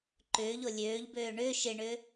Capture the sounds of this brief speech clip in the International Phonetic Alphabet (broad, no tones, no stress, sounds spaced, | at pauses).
ǃ ʏː ʎ o lʲ øː ʎ b øː ɳ ʏː ʃ ɪ ɳ ʏː